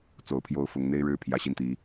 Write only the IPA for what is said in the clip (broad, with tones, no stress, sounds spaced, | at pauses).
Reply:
t͡s o˨˩ ʊ̯ pʰ j o˧˥ ʊ̯ f ʊ˧˥ ŋ n̪ e˥ ɪ̯ ɻ ɻ̩˥ pʰ j ä˧˥ ɕ i˥˩ n t̪ i˧˥